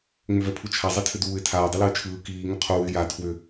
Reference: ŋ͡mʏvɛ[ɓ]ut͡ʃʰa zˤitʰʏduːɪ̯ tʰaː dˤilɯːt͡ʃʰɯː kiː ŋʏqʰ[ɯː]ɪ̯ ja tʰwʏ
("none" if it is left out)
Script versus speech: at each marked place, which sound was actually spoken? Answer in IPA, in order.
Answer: pʰ, uː

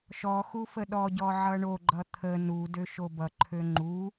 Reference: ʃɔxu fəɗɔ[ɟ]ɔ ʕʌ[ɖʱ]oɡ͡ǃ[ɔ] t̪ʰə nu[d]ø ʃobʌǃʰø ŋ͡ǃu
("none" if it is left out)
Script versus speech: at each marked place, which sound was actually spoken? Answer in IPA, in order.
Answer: ɟ, ɳ, ʌ, d

